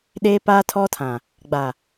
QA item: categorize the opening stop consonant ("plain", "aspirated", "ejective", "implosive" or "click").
implosive